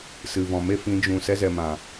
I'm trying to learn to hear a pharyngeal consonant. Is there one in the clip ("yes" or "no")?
no